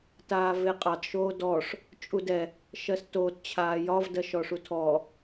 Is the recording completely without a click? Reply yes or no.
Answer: yes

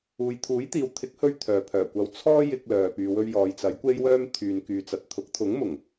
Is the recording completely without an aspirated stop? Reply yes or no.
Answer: no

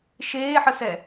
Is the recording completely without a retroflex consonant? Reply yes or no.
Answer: yes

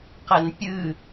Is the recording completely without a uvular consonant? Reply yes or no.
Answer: no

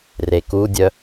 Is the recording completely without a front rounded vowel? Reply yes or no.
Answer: no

